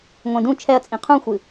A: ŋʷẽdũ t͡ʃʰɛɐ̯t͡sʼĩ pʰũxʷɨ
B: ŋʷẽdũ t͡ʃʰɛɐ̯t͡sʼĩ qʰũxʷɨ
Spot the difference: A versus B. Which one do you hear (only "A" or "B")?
B